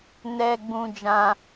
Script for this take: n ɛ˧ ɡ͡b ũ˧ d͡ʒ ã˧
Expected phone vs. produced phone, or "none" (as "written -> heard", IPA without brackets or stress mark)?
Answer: none